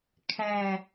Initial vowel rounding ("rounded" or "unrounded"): unrounded